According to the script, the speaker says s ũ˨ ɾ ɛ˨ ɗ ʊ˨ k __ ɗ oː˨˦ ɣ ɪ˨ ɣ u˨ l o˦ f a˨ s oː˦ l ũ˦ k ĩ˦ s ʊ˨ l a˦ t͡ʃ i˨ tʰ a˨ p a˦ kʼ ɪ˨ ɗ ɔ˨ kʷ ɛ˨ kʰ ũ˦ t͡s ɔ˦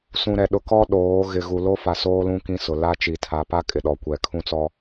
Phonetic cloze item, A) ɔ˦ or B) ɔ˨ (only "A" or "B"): A